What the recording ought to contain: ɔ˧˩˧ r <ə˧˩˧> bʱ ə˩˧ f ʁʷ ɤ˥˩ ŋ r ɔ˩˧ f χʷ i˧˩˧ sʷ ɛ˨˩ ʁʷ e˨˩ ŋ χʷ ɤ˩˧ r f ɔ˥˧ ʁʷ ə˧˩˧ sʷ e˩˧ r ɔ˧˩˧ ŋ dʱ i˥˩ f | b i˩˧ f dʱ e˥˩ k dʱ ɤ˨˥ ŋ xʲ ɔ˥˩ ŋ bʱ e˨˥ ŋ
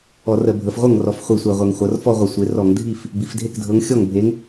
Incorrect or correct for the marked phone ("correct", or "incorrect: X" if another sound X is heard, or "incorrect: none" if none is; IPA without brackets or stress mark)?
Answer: correct